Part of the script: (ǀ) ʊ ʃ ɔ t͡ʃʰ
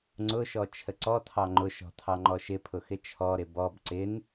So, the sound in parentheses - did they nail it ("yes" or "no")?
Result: no